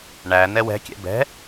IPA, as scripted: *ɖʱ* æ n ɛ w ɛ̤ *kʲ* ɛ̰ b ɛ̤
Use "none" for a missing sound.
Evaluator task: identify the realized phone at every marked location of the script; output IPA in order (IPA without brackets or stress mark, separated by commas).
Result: ɳ, kʲ